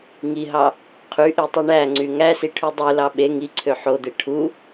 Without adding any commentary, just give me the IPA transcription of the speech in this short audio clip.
ŋiɦɑ | qʰyʔitˤi ɳæŋ͡ǀy ŋæsiʈʰy dˤulɑ ɓe ŋiǀʰø ħod̪e ʈʰu

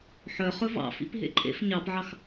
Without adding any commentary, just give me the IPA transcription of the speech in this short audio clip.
ħœ χɵvɑ̰fḭp ɦḛǃʼḛf ɲɑpʕɑx

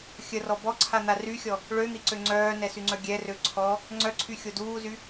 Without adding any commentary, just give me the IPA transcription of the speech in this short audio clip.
xʲərɔ bɔǀʰan̪a ryxʲɔ | ɭøn̪iǀø ŋ͡ǀœːnɛsyŋ͡ǀœ ɡʲɛrø ǀʰɔ | ŋ͡ǀœǀʰyxʲo duːzy

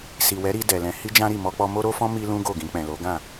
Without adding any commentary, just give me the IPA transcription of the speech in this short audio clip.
si˨wɛ˨˦ɾi˧ dɛ˨lɛ̃˧ hi˦d͡ʒã˦ɾi˦˨ mɔ˧k͡pɔ˧ mo˦ ɾo˦fɔ̃˦ mi˦lũ˦ ɡo˦˨ɡĩ˧k͡pɛ̃˨lo˨˦ ɡã˦˨

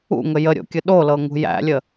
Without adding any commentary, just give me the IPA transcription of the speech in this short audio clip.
ṵŋə jəɾʲo̰kʲə ɗolɤ ŋṳjæ̰lʲə

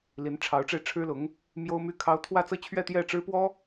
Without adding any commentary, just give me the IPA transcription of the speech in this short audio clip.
li˧˥nʈ͡ʂʰɑ˧˥ʊ̯ʈ͡ʂe˧ɪ̯ ʈ͡ʂʰɻ̩˥lʊ˧˥ŋ | mjo˥ʊ̯my˥kʰɑ˥ʊ̯ t̪ʰwä˥˧t͡sɤ˥˧t͡ɕʰɥɛ˥˧ t̪jɛ˥˩ ʈ͡ʂɻ̩˥pwɔ˥

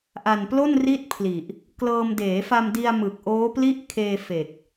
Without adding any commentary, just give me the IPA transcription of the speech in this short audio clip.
ʔa˨˩nplo˥˩nri˥˩t̚pʰli˨˩ʔ | klɤː˧m deː˩˦fa˧mdi˧a̯ mɯ˨˩k̚ʔoː˦˥pli˥˩ʔ kʰeː˧fe˨˩k̚

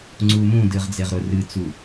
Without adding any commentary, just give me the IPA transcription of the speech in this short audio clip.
ŋ͡ǀumũdɨʁ d͡zeʁɾʊrɨt͡su

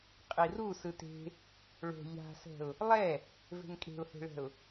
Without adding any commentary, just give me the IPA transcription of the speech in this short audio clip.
qʼiru sɯte̤ | ɭo̤ ʎa̤sɛ̤ʊ̯ | lˠɛ | ve̤ŋkʼe̤ʊ̯he̤ɭɛ̤ʊ̯

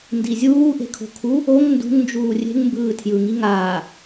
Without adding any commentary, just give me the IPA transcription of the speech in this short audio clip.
ndizʲuː ʔe̤kʰo̤kʰu | oŋ ndṳŋnd͡ʒuː rʲe̤ŋmbɯː tʰjɯŋi ŋaː

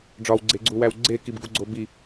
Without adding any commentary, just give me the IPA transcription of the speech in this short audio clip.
ɖ͡ʐɒwɡ͡ǀeɡ͡ǀuwæw ɡ͡ǀekibɡuɡ͡ǀo bi

